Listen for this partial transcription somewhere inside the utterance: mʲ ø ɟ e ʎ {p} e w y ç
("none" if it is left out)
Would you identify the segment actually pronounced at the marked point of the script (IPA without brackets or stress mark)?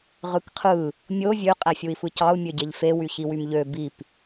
f